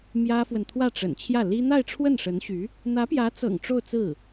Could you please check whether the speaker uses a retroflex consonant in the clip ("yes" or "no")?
yes